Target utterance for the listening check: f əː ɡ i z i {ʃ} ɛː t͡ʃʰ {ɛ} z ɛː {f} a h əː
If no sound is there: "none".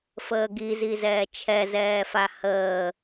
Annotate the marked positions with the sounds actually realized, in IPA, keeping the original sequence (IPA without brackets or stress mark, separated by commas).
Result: z, ɛ, f